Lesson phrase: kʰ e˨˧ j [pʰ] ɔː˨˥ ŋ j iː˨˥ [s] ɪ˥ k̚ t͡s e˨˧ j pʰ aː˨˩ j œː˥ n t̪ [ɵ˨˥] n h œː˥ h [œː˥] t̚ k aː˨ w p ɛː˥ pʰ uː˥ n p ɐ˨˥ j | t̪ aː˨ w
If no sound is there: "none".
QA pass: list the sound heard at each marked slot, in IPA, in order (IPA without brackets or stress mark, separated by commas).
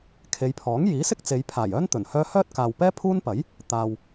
pʰ, s, ɵ˨˩, œː˥